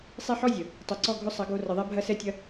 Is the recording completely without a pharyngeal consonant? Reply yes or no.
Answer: no